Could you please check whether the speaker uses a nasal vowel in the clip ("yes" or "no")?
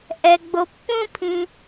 yes